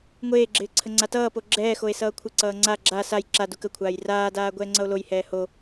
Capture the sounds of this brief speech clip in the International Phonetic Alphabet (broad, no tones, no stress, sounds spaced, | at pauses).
ŋʷ eː ɡ͡ǁ ɪː ǀʰ ə ŋ͡ǀ a t ʌː p o ɡ͡ǁ ɛː x o e̯ s ʌː kʷʰ ɪ ǀ ʌː ŋ͡ǀ a ɡ͡ǁ a s a j ǁ a d u k ə kʷʰ aː j r aː d aː ɡʷ ɛː ŋ͡ǀ ʌ o̯ l o j h ɛː h o